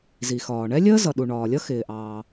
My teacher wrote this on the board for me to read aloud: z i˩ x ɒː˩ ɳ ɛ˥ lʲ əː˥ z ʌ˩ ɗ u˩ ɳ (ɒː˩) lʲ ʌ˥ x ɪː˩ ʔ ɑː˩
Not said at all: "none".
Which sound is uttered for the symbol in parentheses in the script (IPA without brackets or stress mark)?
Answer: ɒː˩